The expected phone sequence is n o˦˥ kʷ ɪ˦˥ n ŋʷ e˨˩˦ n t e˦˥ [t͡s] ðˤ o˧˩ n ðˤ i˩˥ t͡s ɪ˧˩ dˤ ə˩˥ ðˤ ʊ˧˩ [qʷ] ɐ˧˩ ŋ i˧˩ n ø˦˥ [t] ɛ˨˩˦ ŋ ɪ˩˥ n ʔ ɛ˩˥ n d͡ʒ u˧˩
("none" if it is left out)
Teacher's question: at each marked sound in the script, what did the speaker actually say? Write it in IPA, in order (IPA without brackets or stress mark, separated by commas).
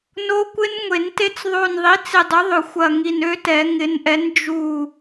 t͡s, xʷ, t